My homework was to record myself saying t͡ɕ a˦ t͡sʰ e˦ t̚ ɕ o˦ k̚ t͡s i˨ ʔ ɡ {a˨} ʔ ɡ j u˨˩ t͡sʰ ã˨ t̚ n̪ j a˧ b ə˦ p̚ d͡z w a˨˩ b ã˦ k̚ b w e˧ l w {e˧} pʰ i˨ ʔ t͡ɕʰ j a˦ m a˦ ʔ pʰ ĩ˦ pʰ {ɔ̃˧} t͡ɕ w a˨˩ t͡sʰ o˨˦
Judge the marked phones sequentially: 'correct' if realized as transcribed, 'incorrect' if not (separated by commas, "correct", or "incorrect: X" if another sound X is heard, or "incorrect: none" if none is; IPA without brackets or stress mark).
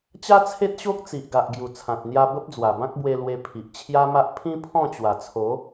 correct, correct, incorrect: ɔ̃˥˧